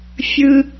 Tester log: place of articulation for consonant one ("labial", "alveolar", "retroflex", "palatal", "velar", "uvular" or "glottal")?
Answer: labial